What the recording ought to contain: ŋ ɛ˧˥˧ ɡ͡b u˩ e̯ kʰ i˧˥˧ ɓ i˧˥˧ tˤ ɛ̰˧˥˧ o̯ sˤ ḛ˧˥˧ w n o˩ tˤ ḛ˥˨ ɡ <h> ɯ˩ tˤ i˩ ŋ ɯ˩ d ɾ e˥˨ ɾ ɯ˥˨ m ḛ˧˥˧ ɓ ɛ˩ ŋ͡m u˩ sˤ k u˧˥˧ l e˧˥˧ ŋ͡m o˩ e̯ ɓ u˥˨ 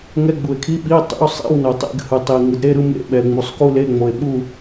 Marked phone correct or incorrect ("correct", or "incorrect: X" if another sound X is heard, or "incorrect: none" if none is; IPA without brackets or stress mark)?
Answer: correct